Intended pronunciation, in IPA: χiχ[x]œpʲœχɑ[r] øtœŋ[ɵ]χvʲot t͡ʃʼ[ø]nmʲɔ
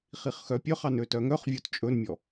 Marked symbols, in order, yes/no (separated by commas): yes, no, no, no